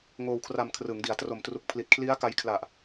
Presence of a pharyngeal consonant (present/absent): absent